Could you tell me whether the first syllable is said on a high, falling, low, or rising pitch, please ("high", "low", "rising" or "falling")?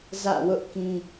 falling